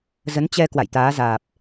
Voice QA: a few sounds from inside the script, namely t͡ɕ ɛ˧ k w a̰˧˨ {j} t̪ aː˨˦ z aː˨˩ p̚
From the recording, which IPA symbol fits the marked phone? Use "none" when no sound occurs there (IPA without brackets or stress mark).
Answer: j